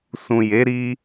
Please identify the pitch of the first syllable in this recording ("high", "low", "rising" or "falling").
low